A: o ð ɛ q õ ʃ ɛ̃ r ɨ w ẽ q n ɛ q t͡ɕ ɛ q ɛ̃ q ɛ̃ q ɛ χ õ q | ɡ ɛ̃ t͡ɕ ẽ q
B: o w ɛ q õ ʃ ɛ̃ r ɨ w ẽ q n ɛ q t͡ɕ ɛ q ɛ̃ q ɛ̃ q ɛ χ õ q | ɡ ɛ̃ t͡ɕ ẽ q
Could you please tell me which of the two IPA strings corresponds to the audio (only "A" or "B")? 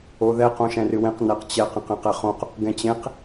A